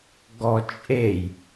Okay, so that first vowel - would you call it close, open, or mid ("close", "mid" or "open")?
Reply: mid